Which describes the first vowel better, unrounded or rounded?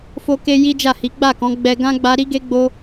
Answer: rounded